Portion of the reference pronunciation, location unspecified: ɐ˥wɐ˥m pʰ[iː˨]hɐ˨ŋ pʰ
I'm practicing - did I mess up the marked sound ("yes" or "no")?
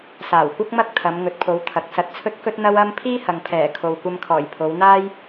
yes